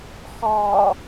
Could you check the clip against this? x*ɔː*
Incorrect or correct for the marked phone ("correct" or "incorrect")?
correct